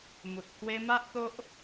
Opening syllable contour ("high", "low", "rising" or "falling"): low